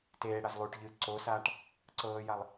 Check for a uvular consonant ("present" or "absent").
absent